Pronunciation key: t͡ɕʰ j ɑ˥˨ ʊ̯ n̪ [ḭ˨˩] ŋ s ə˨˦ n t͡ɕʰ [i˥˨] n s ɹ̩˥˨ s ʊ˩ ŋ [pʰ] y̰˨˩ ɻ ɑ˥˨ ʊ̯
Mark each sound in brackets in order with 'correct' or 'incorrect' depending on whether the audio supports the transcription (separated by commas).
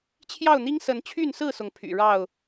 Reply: incorrect, incorrect, correct